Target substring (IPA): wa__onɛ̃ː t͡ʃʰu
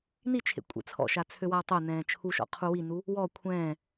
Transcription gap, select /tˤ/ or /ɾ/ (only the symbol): tˤ